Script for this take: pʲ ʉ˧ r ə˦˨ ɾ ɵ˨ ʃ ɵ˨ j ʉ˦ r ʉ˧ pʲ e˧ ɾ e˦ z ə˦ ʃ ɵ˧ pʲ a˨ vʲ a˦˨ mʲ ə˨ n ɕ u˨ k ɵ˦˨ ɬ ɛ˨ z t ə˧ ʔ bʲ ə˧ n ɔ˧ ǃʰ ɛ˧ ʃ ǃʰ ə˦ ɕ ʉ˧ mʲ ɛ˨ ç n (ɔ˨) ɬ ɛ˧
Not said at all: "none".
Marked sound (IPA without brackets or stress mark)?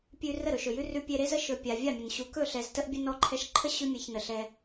ə˨